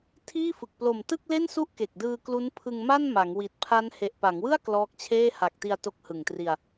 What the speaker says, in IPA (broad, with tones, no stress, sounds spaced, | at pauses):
tʰ iː˥˩ f ɯ˨˩ k̚ p l o˨˩ m t ɯ˥˩ k̚ l e˥˩ n s u˥˩ ʔ k e˨˩ k̚ d ɯː˧ k l u˦˥ n pʰ ɯ˧ ŋ m a˥˩ n m a˩˦ ŋ w i˨˩ t̚ pʰ a˦˥ n h e˨˩ ʔ p a˩˦ ŋ w ɯ˥˩ a̯ k l ɔː˦˥ k̚ t͡ɕʰ eː˥˩ h a˨˩ k̚ t i˧ a̯ t o˦˥ k̚ h ɯ˨˩ ŋ t r i˧ a̯